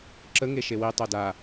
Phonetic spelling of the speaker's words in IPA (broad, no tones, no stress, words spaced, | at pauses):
ǁə ŋeʃewi tˤoda